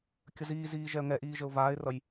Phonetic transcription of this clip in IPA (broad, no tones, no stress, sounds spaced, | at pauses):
kʲ ə z iː z iː ʒ ɛ ə̯ ŋ ɛ ʔ iː ʒ ə ʊ̯ v aː ɪ̯ r ʌ j